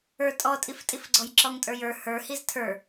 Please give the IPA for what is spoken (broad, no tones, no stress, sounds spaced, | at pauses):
ə˞ tʼ ɔ tʼ i f tʼ i f ɡ͡ǀ ɔ j ǁ ɔ ŋ tʼ ə˞ j ə˞ h ə˞ h i z tʰ ə˞